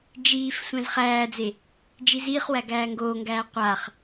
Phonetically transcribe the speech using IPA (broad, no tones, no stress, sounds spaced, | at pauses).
d͡ʒ iː f sʷ æ̃ z χ æː d͡z e | d͡ʒ i z iː χ w æ ɡ æː ŋ ɡ oː ŋ ɡ æː qʷ a χ